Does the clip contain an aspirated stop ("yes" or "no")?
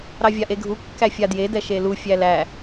no